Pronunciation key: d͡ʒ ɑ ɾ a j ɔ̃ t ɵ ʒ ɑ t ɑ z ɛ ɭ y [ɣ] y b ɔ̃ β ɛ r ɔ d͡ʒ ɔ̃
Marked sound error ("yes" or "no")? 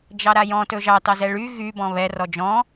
no